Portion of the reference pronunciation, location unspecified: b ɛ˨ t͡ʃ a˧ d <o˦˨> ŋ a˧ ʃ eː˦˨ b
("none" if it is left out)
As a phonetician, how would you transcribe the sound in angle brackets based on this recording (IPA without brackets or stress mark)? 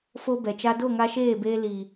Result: o˦˨